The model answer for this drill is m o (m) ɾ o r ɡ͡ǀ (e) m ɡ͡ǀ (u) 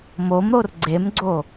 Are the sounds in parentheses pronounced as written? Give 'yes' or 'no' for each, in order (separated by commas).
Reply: yes, yes, no